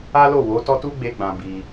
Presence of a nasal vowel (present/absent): present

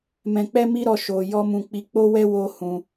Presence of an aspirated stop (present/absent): absent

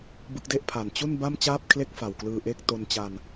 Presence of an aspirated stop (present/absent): present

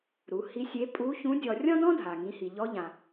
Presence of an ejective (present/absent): present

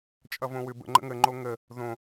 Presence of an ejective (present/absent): present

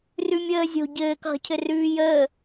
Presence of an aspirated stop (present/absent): present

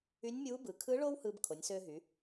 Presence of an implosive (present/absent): absent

